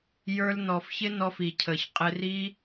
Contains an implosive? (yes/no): no